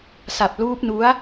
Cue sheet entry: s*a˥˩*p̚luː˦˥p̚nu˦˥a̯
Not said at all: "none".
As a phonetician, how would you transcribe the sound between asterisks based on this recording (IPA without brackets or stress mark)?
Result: a˨˩